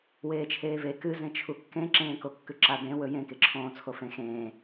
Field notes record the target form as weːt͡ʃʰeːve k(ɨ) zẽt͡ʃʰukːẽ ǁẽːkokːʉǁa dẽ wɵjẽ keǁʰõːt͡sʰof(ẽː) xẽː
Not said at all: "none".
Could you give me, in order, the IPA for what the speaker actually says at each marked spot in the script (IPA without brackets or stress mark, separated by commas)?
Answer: ɨ, ẽ